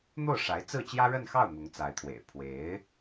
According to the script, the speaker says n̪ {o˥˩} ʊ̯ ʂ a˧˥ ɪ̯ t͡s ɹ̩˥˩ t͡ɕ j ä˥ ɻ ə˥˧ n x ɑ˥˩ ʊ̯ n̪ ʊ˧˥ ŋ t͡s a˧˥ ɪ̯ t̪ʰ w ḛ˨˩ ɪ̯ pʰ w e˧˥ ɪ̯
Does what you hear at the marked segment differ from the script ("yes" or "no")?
no